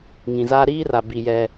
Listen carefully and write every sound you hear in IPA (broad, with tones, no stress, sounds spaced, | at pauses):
ŋ ĩ˨ z aː˦ ɾ iː˦ r a˨ b i˨ j ɛ˨